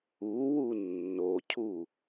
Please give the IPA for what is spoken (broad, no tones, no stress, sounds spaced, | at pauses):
u w u nː o cʰ u